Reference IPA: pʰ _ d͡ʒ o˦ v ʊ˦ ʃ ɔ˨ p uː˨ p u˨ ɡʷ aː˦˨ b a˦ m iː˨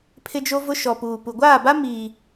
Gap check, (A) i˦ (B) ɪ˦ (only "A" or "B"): B